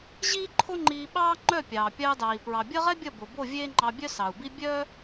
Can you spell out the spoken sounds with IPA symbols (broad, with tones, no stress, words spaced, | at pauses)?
ʑiː˦ǃʰo˦ŋ͡ǃiː˧ɓɑː˦ ŋ͡ǃœ˦˨pʲɑː˨ pʲɑː˧dɑː˨i̯ pɹɑ˨bʲɐ˦ʁɛ˦bʲɐ˦˨ bo˨bo˦˨vʲeː˦ŋ͡ǃɑ˧ bʲœ˦sɑ˨u̯bi˦ bʲœ˦